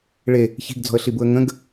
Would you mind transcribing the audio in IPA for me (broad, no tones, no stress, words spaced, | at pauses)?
ɭe | çi̤ɡd͡zɔ̤ə̯ɬibuə̯ ŋə̃ɡ